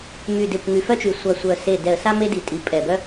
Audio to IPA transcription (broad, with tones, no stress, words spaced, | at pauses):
my˨˩de˨˩kʷ ŋy˨˩fœ˦t͡ʃy˨˩ sʷa˨˩sʷœ˨˩ se˨˩ dɛ˨˩ə̯sa˦ me˦di˨˩tʼi˨˩ pʼɛ˨˩bœ˦